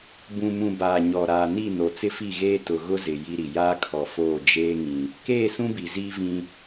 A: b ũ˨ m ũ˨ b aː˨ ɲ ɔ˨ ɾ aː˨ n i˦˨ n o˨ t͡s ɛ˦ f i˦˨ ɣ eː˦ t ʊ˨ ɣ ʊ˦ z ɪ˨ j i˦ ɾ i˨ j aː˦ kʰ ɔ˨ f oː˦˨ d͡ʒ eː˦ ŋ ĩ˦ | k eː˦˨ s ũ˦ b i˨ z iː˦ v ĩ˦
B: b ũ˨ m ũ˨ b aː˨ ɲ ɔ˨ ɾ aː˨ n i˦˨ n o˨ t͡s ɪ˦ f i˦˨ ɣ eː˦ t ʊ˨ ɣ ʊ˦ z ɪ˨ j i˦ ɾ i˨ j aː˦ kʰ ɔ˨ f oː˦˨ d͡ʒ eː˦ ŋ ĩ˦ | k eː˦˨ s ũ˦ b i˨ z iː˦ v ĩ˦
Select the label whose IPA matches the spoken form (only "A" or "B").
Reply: B